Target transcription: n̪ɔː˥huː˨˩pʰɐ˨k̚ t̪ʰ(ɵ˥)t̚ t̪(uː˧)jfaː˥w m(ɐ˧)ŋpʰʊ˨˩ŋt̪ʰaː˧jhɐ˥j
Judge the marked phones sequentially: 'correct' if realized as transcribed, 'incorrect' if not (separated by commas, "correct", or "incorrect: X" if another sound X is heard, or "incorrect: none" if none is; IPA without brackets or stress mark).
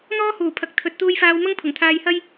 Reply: incorrect: ɵ˨, incorrect: uː˥, incorrect: ɐ˥